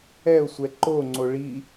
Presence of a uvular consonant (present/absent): absent